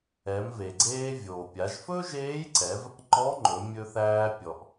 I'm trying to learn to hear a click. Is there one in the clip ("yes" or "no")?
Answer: yes